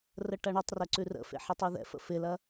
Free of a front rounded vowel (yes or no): yes